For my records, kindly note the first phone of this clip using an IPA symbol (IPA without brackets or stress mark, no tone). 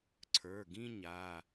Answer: ǀʰ